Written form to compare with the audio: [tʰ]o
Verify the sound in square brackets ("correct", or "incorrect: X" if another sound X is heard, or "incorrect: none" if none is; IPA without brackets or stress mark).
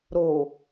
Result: incorrect: ɾ